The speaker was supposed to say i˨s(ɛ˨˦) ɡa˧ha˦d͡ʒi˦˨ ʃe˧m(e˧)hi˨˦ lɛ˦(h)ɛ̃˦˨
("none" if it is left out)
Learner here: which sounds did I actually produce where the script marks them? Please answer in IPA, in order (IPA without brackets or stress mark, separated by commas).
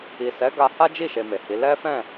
ɛ˨˦, e˨, f